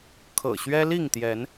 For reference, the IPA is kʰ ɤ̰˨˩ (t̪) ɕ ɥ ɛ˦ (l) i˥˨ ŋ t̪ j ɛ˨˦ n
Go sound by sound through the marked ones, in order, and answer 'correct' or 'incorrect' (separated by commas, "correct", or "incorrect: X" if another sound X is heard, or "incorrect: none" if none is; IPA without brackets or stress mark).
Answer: incorrect: none, correct